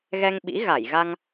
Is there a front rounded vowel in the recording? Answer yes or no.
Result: no